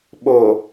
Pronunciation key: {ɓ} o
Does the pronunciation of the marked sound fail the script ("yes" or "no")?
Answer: no